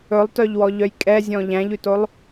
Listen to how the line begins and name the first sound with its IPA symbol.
ɵ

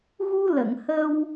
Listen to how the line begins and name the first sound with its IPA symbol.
ɣ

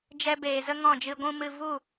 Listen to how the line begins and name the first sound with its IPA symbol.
d͡ʒ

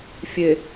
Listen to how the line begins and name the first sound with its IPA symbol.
fʲ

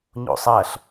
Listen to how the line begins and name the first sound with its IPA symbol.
ɲ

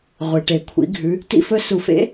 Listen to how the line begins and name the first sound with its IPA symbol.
ʁʷ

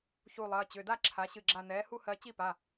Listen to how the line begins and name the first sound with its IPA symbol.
ç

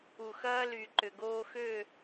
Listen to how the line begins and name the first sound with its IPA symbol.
u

